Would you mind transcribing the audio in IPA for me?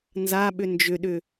n z a ɓ ʏ n d͡ʒ ʏ ɗ ʏ

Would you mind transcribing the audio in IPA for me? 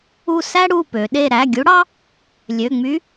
u˦˨ s æ˥ ɽ u˩˧˩ p ø˩˧ ɗ e˦˨ ɾ æ˩˧˩ ɡʲ u˧˥ ɽ ɑ˥ | lʲ ø˩˧˩ ŋ͡m y˧˥

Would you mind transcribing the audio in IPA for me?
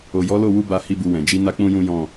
o˨ j ɔ˨˦ l o˦˨ w u˧ b a˧ h i˦ b u˧ w ɛ̃˨ d͡ʒ i˨˦ n a˦ k͡p ũ˦ j ũ˦ j ɔ̃˦˨

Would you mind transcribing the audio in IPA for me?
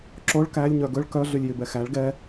ǁ o ɭ k æ lʲ ɲ œ ɡ ɵ ɭ k œ ɮ y lʲ j y b ɛ x æ ɭ ɡ ɛ

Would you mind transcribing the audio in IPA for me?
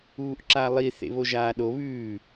uː ʔ ǁ a lˠ i θ ḛ β o ʒ aː ɗ o β ʉː

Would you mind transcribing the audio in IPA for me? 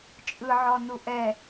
t͡ʃʼ ɯ ʕ ɔ n u ʔ ɛ

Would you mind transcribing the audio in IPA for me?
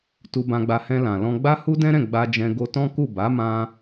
t u˧ b ã˧ ɡ͡b a˧ h ɛ̃˧ l ã˨ l ɔ̃˧ ɡ͡b a˦ h u˦ d ɛ̃˦ ɾ ɛ̃˦˨ ɡ͡b a˧ d͡ʒ ɛ̃˧ ɡ o˧ t ɔ̃˦ k u˦˨ b a˨˦ m ã˧

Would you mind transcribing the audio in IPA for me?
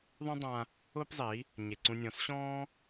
ðˤ ũ˦ dˤ ã˧ | ʊː˦ p zˤ i˨˦ | ɲ e˨ ǀ ũ˧ nʲ ɔ̃˨˦ s ɕ ɔ̃ː˦

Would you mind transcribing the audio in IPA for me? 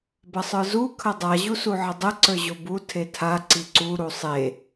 b ɐ sˤ ə˞ z u kʰ ɐ dˤ a ʑ u s u ʕ ə dˤ ə ǀ ə˞ ʑ o b u tʰ e tʰ a ǀ i ǀ u ɾ u sˤ e

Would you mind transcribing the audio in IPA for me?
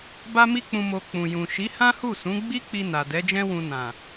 b a˦ m i˦ k͡p ũ˧ m o˧ k͡p ũ˨ j ũ˨ ʃ i˨˦ h ã˦ h u˦˨ s ũ˨˦ ɡ͡b i˦ k͡p i˧ n a˨ d ɛ˨˦ d͡ʒ ɛ̃˦ w ũ˧ n ã˨

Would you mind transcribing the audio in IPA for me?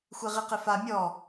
xʷ e ʁ i q ɪ f a mʲ ɔ

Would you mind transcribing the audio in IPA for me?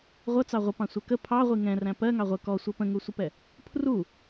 ʁʷ ʌ t͡s ɑ ʁʷ ə p ɑ̃ sʷ ɛ k ə pʰ ɑ ʁʷ i ŋ ɛ̃ r æ̃ p ɜ ŋ ɑ ʁʷ ə k ɔ sʷ ʌ p ə̃ ŋ u sʷ ə p ɛ | pʰ r u

